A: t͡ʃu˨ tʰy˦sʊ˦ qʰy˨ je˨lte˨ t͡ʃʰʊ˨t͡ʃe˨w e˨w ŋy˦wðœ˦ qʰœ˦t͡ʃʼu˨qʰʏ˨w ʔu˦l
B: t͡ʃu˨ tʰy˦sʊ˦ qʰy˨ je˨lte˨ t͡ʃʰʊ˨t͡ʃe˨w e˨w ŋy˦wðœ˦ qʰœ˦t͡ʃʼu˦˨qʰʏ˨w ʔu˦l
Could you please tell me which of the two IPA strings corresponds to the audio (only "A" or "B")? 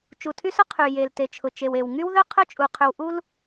A